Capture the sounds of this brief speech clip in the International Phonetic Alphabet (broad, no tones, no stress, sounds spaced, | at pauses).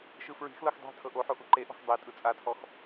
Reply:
ʃ ɯ f ɹ i̤ x l ɤ x dˤ e̤ tʰ ɤ ʔ o ħ o ʔ u ǃ e ʔ ɔ̤ x dˤ e tʼ ɯ t͡sʼ a tʰ ɔ x